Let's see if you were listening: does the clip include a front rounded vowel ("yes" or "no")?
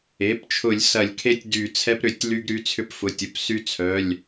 yes